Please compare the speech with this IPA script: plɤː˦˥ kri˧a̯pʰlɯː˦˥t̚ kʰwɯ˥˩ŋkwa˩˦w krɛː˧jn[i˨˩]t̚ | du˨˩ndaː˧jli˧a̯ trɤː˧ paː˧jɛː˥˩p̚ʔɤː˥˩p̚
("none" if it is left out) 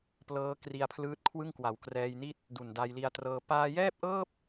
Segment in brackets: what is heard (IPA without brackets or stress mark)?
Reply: i˥˩